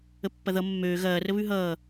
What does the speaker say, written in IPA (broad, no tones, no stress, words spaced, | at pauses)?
əpːɐðʌ mːøː ɣɐː rəβʉɦʌː